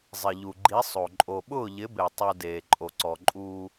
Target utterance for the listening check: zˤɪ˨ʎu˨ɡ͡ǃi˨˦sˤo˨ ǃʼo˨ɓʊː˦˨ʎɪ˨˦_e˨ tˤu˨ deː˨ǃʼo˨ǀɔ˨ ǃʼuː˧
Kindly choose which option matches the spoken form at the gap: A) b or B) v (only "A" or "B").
A